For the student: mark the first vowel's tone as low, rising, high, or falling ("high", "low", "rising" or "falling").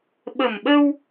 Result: low